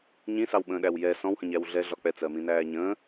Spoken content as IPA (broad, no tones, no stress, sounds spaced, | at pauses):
ɲ ĩ s ɑ w ɓ ə̃ː ɗ æ w j ɛ s ɔ̃ w h ə̃ ɲ æ w ɮ ɛ ɮ ɒ k͡p ɛ t͡s ɜ m ĩ n æː ɲ ə̃ː